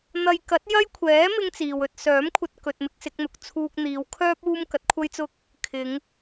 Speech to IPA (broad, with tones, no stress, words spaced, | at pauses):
n̪ɐ˧j kɐ˨˥t̚jɐ˥jkʷʰɛː˨˥ mɪ˥ŋt͡siː˨wɵ˧t̚ sœː˨˥mkʷʰɐ˧t̚ kɵ˧t̚mɪ˥k̚ sɪ˨˥k̚n̪ʊ˨k̚t͡sʰuː˥k̚ n̪iː˨˧wkʰœː˥p̚ uː˥mkɐ˨˥t̚kʷʰɐ˥jt͡sʊ˥k̚ | kʰɪ˨˧ŋ